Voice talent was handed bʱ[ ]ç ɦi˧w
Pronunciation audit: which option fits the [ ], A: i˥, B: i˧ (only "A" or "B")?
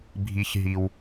B